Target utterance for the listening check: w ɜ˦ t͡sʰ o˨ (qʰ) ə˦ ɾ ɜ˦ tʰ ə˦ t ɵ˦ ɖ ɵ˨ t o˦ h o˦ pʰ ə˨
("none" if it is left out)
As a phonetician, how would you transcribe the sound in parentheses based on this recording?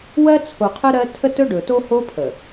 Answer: qʰ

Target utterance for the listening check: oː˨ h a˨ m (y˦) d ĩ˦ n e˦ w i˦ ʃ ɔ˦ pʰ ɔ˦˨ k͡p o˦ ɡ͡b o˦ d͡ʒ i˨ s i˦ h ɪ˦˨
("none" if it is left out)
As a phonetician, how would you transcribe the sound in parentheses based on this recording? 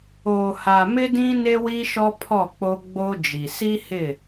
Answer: ɪ˦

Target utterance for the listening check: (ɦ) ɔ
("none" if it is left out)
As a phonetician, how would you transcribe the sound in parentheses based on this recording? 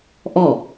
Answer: ʔ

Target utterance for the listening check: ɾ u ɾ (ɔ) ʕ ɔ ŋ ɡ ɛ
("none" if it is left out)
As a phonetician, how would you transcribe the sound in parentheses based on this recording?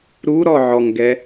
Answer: ɔ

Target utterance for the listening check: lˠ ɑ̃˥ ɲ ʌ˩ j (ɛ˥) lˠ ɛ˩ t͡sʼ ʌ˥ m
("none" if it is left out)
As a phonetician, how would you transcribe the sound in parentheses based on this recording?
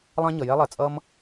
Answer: ɛ˥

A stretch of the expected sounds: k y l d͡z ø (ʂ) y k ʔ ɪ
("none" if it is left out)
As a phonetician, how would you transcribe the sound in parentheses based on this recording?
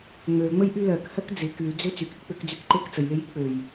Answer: t͡s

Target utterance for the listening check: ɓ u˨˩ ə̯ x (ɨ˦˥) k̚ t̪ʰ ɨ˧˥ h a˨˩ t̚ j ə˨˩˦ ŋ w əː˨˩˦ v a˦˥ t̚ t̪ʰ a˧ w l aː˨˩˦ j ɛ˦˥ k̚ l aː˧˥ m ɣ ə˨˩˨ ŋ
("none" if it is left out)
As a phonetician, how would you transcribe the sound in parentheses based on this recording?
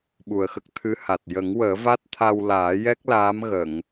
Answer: ə˦˥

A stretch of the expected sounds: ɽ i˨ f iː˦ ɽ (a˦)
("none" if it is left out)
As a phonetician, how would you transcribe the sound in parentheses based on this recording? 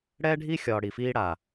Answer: a˨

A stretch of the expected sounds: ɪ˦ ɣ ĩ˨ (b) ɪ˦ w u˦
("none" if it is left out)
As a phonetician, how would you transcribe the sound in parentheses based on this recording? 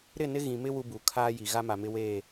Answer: m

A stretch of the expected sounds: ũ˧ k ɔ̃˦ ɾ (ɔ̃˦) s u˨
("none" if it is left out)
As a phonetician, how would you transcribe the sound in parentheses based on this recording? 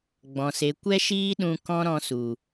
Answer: ɔ̃˧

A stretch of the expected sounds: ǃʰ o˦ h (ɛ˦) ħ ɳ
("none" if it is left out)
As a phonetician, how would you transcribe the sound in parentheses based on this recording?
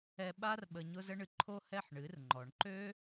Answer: ɛ˦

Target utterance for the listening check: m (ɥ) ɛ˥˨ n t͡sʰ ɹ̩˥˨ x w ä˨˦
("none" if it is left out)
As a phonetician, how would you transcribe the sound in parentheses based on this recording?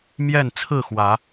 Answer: j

